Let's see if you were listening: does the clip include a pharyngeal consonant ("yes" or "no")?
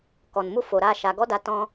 no